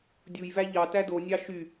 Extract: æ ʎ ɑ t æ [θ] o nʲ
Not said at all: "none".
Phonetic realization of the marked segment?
d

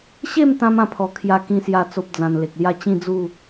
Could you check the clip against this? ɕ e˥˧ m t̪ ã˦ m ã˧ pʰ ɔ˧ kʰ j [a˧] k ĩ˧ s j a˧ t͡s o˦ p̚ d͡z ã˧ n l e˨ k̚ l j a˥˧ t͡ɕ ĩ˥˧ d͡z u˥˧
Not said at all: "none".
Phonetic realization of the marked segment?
a˧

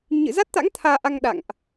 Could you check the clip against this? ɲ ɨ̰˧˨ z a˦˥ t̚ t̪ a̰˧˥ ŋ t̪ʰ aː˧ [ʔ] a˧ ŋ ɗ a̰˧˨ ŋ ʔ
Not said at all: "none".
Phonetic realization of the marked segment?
ʔ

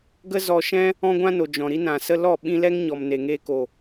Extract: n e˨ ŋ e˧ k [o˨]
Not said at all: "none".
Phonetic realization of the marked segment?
o˨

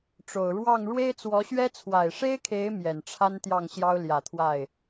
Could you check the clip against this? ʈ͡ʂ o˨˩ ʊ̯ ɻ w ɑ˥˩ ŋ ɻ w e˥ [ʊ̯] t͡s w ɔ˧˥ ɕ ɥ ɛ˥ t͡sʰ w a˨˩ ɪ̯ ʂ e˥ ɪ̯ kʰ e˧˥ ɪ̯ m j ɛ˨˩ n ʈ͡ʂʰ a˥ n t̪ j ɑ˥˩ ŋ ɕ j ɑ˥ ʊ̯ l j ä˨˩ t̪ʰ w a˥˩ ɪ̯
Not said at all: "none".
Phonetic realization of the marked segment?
ɪ̯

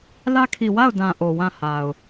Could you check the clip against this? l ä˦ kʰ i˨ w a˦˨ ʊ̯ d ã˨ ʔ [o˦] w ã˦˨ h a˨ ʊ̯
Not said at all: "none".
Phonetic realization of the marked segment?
o˨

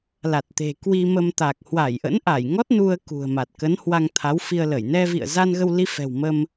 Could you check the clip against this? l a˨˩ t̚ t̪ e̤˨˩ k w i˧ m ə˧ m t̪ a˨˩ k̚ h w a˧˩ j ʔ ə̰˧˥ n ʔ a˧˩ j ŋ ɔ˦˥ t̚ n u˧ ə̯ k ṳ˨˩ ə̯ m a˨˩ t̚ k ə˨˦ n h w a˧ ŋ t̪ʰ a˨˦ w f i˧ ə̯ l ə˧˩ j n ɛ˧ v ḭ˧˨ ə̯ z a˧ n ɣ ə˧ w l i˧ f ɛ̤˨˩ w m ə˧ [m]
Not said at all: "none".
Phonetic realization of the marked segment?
m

